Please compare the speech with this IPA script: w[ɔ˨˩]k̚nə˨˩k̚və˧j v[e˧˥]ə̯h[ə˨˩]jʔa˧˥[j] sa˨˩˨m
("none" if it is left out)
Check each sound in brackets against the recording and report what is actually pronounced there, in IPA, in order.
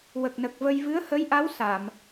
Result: ə˨˩, ɨ˧˥, ə˧˥, w

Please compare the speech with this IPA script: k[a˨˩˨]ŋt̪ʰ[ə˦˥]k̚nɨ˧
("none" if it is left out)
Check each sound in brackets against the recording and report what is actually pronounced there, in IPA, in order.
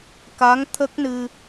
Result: a˧˥, ə˦˥

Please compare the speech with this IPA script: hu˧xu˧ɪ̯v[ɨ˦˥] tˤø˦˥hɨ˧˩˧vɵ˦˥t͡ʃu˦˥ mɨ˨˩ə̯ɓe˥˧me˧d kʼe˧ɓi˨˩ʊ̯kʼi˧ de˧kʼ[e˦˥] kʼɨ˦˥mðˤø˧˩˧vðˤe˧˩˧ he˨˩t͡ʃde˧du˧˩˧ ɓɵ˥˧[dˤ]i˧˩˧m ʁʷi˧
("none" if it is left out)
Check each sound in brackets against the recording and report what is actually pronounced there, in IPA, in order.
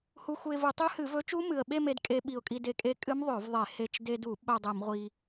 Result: ɨ˧˩˧, e˦˥, dˤ

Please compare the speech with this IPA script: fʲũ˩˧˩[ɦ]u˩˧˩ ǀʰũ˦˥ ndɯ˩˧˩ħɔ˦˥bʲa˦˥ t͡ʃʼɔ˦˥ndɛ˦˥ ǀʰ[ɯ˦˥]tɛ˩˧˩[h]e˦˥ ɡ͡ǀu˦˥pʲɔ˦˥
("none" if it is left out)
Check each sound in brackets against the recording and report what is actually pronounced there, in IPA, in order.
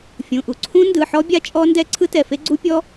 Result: ʔ, ɯ˦˥, f

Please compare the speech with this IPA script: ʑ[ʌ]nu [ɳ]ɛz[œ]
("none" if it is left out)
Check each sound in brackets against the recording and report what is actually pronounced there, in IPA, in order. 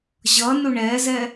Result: ʌ, ɳ, ɛ

